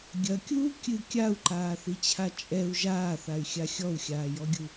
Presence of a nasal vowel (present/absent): absent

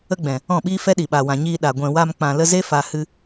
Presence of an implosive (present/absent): present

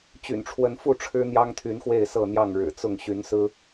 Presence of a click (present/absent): absent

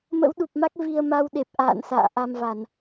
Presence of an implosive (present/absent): present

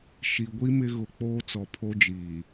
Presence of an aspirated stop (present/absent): present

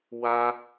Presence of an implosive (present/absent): absent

